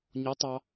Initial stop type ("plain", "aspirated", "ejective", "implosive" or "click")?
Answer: plain